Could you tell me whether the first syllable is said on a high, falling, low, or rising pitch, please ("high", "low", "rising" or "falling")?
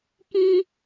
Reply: high